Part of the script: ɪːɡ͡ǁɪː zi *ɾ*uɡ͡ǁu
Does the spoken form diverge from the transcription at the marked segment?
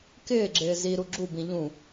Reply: no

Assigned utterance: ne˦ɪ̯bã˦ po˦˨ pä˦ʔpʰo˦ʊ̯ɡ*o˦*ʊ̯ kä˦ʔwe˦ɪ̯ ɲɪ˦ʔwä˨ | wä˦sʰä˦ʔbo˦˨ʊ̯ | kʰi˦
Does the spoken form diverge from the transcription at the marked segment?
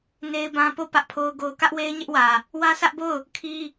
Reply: no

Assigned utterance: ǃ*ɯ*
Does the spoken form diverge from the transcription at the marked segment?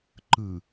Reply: no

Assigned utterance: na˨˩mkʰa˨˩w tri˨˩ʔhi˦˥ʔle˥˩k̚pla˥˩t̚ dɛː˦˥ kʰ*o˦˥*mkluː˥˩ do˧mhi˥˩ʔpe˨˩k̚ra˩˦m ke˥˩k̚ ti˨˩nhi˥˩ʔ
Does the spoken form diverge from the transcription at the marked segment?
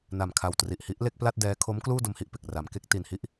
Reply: no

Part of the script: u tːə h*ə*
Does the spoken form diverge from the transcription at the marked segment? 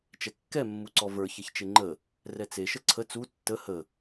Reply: no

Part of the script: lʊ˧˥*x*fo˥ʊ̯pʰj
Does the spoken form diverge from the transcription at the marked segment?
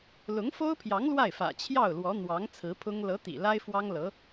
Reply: yes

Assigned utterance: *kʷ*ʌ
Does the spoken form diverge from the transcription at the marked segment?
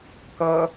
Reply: yes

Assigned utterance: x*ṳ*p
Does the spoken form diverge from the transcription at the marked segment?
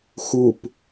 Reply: yes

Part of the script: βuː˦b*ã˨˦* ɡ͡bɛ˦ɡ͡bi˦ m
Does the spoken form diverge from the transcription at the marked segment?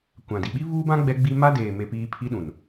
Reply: yes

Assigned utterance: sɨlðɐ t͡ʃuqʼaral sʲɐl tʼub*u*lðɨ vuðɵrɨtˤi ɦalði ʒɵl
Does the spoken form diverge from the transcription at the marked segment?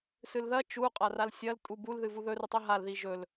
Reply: no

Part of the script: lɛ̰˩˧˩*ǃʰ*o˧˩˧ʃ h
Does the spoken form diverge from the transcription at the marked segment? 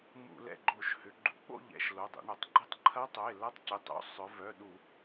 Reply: yes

